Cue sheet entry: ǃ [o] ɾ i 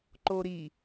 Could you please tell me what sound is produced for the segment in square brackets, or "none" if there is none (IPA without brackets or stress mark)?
o